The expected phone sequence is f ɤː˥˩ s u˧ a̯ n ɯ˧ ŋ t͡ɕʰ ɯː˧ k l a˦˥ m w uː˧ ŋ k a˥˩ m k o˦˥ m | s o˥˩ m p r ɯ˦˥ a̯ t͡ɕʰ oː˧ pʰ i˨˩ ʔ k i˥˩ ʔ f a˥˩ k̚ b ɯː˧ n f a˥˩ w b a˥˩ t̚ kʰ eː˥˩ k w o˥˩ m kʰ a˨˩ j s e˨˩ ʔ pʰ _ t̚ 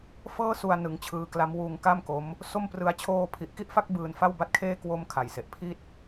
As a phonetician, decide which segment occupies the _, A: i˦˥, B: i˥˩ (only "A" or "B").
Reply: B